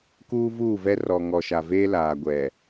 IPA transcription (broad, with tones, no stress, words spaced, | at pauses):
kuː˦vuː˦˨vɛ˦ rɔ˨ ŋɔ˨ʃa˨veː˦ laː˨ɡʷɛ˨